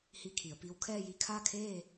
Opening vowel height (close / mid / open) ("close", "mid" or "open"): close